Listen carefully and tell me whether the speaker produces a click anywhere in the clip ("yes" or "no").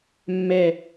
no